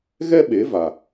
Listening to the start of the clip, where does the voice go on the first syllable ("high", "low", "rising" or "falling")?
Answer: high